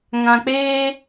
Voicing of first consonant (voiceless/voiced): voiced